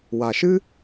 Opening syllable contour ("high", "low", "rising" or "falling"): low